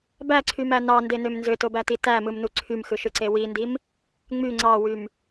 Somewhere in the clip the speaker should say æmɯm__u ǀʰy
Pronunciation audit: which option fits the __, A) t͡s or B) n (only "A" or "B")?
B